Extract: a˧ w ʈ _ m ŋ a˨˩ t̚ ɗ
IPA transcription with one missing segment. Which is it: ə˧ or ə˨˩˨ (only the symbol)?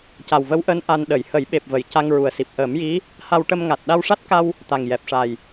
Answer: ə˧